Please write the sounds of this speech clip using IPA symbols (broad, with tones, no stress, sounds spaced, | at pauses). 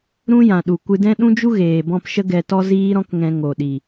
ɾ ũ˦ j ã˨ ɗ u˨ kʷ ɨ˧ d ɛ̃˦ ɗ ũ˦ d͡ʒ u˦ ɣ eː˨ b ɔ̃˧ p ʃ ə˦ ɡ ɛ˧ t ɔ˦ z iː˦ ɾ ɔ̃˦ k ŋ ɛ̃˧ ŋ o˨ ɗ i˨